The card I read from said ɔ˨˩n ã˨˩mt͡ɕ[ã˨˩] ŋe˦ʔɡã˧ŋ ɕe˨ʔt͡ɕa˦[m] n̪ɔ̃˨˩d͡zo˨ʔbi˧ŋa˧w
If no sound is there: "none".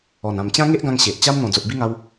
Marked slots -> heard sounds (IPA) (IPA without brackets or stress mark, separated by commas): ã˦, m